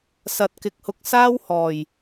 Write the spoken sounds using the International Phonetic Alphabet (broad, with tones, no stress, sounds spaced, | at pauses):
s ɐ˧ t̚ k ɪ˧ k̚ h ʊ˧ k̚ s aː˥ w h ɔː˨˩ j